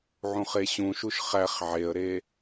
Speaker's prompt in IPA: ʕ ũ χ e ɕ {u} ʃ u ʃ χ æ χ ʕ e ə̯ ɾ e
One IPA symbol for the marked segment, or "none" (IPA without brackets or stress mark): ũ